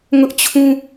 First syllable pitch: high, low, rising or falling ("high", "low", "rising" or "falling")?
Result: high